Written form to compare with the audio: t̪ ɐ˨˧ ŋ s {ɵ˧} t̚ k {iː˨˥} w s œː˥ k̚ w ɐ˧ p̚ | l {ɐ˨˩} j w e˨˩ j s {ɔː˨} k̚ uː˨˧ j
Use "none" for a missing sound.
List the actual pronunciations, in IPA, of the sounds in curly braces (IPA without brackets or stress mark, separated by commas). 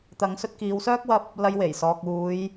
ɵ˧, iː˨˧, ɐ˧, ɔː˨